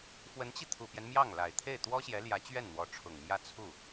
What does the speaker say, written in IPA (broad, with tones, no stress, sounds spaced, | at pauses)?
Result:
f w ə˧˥ n t͡ɕ i˧ t̪ʰ u˨˩ p j ɛ˦ n m j ɑ˥˩ ŋ l a˨˩ ɪ̯ t̪ʰ e˥˩ ɪ̯ t̪ w ɔ˥ ɕ j ɛ˧˥ l j ä˧˥ t͡ɕ ɥ ɛ˥˩ n n̪ w ɔ˧˥ ʈ͡ʂʰ ʊ˨˩ ŋ m j ä˥ t͡sʰ u˥˩